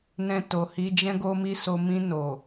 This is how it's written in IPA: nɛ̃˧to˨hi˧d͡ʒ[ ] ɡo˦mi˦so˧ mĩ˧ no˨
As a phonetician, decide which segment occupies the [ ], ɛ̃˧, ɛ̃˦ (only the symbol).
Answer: ɛ̃˦